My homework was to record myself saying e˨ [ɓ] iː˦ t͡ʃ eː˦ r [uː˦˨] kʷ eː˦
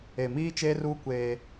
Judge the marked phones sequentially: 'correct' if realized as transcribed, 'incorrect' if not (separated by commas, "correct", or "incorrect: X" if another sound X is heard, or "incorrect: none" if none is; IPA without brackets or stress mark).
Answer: incorrect: m, incorrect: uː˦